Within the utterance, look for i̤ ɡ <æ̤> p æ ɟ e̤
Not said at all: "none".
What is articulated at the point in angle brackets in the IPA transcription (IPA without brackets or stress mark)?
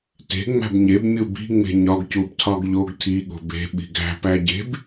æ̤